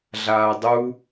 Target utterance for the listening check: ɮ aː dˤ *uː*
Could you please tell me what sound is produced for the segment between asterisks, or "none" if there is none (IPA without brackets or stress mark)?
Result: u